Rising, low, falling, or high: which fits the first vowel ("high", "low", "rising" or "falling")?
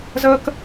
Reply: high